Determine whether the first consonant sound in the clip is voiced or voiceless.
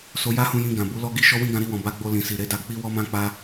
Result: voiceless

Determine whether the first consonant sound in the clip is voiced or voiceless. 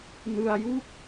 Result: voiced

